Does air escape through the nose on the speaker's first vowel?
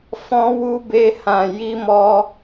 yes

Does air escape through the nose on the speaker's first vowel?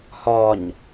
no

